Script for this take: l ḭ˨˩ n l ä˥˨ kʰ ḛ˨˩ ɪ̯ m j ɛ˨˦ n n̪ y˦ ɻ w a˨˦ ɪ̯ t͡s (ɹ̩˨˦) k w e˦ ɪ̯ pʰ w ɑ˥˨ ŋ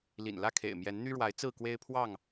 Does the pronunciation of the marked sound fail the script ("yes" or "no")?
yes